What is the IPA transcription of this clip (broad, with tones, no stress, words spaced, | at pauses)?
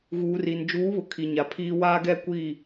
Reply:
ɣuː˨ri˨n d͡ʒuː˨˦βʊ˨ kʰi˨ɲa˨pʰiː˦ waː˦ɡɛ˦ kʷiː˦˨